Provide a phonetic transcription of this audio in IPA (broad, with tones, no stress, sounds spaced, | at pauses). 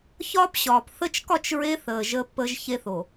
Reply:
ç ɒː˦ p ɕ ɒː˨ p θ ə˦ t͡ʃ k ɒ˦˨ t͡ʃ ɹ e˦ θ əː˨ ʒ əː˦ pː əː˦ ʒ ç e˦ θ o˨